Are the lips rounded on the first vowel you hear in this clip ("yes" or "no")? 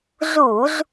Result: yes